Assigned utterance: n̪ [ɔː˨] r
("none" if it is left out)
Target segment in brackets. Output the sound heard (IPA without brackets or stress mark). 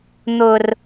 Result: ʊː˨